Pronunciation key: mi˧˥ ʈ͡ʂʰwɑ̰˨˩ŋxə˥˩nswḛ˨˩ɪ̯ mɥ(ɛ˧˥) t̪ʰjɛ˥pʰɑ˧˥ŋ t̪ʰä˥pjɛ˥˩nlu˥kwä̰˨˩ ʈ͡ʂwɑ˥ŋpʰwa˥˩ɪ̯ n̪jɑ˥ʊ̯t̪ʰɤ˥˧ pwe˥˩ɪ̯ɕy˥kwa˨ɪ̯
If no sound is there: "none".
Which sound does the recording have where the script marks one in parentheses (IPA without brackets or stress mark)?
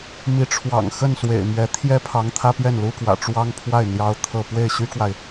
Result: ɛ˧˥